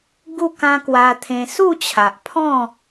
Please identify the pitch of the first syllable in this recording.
falling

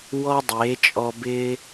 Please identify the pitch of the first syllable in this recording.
high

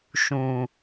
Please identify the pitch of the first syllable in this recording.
low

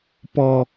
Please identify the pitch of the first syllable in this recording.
low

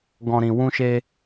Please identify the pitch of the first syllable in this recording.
low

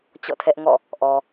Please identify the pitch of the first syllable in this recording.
falling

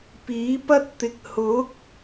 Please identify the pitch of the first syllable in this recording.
rising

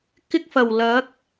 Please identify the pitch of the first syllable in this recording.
high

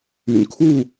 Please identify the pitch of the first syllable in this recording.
low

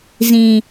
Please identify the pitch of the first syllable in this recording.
low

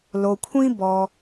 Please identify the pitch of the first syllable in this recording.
low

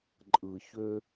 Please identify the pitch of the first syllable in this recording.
low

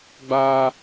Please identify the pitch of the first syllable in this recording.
high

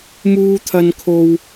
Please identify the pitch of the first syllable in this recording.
high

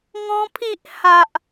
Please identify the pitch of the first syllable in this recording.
high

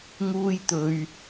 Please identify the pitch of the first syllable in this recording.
high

